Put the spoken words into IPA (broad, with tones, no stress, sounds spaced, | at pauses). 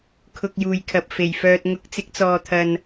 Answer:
kʰ ʊ˧ k̚ j uː˨ j kʰ ɐ˨ p̚ f e˨˩ j f œː˨ t̚ ŋ ʊ˨˥ k̚ t͡s ɪ˨˥ k̚ t͡s ɔː˨ t̪ʰ ɐ˨ n